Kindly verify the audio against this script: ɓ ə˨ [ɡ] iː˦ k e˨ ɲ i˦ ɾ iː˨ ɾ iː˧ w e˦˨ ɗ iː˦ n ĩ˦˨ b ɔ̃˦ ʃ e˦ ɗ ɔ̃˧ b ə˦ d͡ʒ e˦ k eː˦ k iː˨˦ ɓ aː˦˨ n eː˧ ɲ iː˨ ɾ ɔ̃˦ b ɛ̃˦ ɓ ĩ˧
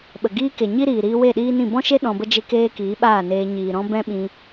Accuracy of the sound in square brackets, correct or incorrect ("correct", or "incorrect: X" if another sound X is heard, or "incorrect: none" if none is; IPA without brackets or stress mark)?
correct